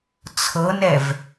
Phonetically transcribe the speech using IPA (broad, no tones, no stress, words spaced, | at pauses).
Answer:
t͡sʰɤnɛv